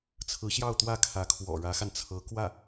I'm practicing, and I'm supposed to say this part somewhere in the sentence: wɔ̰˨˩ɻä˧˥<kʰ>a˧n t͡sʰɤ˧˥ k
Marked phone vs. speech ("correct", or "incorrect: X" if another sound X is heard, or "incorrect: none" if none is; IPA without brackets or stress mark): incorrect: x